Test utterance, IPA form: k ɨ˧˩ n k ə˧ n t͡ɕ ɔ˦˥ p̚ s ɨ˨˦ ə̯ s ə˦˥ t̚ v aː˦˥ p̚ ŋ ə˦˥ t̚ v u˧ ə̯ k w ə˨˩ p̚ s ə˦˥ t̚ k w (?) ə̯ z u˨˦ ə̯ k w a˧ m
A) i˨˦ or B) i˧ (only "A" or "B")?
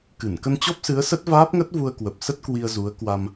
B